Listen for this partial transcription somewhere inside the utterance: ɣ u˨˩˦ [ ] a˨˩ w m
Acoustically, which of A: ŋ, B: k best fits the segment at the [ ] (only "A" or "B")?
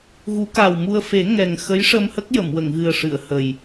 B